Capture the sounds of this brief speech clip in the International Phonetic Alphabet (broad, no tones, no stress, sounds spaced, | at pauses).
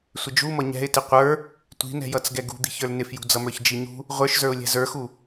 sʷ ɪ d͡ʒ u m ʌ ɲ ɛ̤ ɪ̯ t ɪ qʷ ə˞ | tʷ i̤ n ɛ̤ j ʌ t͡s ɡ ɛ ɡ ṳ d̪ i̤ ç ə˞ l n ɪ f j ṳ d͡z ʌ m ə˞ ç d͡ʒ i ɲ ṳ | ʁʷ ə˞ ʃ z ə˞ ʊ̯ lʲ ɛ̤ z ə˞ x u